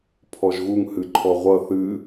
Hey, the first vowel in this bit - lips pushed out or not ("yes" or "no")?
yes